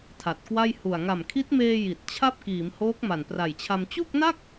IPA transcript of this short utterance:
tʰa˨˩t̚kwa˥˩j hu˨˩a̯ ŋa˨˩mkʰi˦˥t̚meː˧ ji˨˩t̚t͡ɕʰa˥˩p̚ kiː˩˦mhoː˦˥k̚ ma˨˩npra˨˩jt͡ɕʰa˧m t͡ɕu˥˩k̚na˥˩k̚

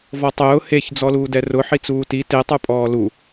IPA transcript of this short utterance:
vɔtˤʊː heç d͡zɔluːdɛrʊ ħit͡suːti te tˤupʼɔːlu

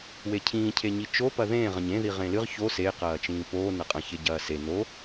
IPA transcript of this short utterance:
wecʰĩː cʰeɲit͡ʃo pɐðẽː ʁɐ̃ɲẽ ðiʁẽlɨʁ ço se qɐːt͡ʃĩːpoː nɐqʼɐ̃ çeɟɐːse no

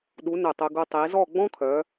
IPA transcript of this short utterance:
ɗu˩˧ nɵ˧˩tˤɵ˧ɡu˧ tˤi˩˧zɔ˥˧ ɡ͡bɔ̃˥kʰœ˩˧

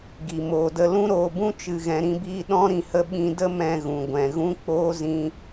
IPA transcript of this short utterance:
ɡi˨ moː˨də˧ lũ˦ɾoː˧bũ˦ t͡ʃɨ˨ɣɛ̃˨ɾĩ˧biː˧ ɗɔ̃˦ ɾĩ˨hə˧ ɓĩ˧də˦mɛ̃˧ ɣũ˨ɡʷɛ̃˨ ɣũ˦k͡poː˦ zĩ˧

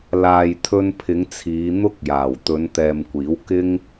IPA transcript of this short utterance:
laː˨jt̪ʰɵ˧npʰɪ˨˧ŋ t͡sʰiː˨˧n̪ʊ˥k̚jaː˨˩w t̪ɵ˨˧nt̪ɛː˨mkʷiː˨˥wkɪ˥ŋ

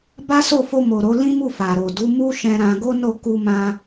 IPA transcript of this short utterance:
ba˦so˦˨fo˧ mo˨ɾo˨˦lĩ˦mu˦˨ fa˨ɾo˨ du˨˦mu˦ʃɛ̃˧ ɾã˧ɡo˦ no˦˨ku˧mã˧

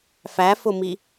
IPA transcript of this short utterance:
fæfʊmi

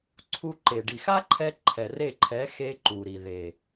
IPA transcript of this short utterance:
ǀʰu˧ǃe˨ ɖi˨x a˦ǃʰɛ˧ ǃʰɛ˨re˦˨ǃʰɛ˨˦xe˧ ǃu˨ɾi˨ ðe˨

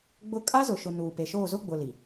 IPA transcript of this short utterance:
ɡ͡bʊ˦ kʼa˦zʊ˨ʃʊ˨ nuː˨pe˨ʃoː˦˨ zʊ˦ɡ͡bʊ˨ li˨

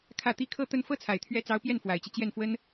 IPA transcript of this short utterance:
kʰä˥˩t̪i˥ kʰɤ˥t̪ə˥˧n fɤ˥˩t͡sʰa˨˩ɪ̯t̪ʰɥɛ˧˥ t͡sɑ˧˥ʊ̯pjɛ˥˩nfwa˨˩ɪ̯t͡ɕi˦ t͡ɕjɛ˥˩nfwə˥n

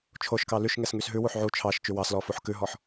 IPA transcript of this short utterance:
t͡ʃʰoʃkɑ lyʃŋɛs ŋysɦʉwuħ ʕu t͡ʃʰɑʃ t͡ʃywɑslɔ fuħkʉɦɔħ

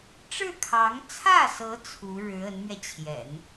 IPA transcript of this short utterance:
ʈ͡ʂɻ̩˥˩kʰɑ˧˥ŋ t͡sʰä˥˩sɤ˧˥ t͡sʰu˧˥ɻɻ̩˧˥ ə˧˥nmɥɛ˧t͡ɕʰjɛ̰˨˩˦n

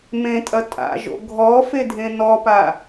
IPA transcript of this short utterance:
mẽtʼɐ tʼa̰ʒo̰ ɡʱɔ fedʱẽnɔpa

